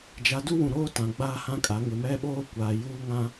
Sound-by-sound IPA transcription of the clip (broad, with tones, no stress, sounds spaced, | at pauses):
d͡ʒ a˨˦ d u˦ w ũ˨ ɾ oː˦ t ã˨ ɡ͡b aː˦ h ã˦ kʼ a˨˦ ŋ ɪ˨ m ɛ˦ ɓ oː˦ kʷ aː˨ j uː˦ ŋ ã˦